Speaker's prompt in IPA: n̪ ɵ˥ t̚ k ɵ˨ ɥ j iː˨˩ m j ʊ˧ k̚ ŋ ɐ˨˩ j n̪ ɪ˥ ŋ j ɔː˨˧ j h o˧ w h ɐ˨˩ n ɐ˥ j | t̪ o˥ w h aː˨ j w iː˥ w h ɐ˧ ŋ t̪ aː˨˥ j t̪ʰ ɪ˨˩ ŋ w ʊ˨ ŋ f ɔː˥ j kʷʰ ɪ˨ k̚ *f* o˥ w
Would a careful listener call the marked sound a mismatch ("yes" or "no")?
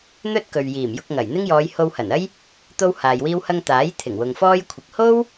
yes